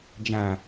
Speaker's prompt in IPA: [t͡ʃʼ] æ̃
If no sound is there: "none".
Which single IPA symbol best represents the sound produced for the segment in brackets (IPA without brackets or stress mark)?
d͡ʒ